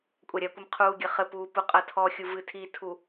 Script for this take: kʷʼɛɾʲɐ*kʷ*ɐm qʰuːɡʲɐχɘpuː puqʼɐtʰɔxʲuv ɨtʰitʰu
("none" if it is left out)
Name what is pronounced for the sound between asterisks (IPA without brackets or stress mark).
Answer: kʷ